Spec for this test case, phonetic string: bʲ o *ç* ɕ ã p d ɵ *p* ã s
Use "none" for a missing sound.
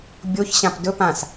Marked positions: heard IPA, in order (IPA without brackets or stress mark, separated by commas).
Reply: ç, p